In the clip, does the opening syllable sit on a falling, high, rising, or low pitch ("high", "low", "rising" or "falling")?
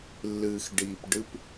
low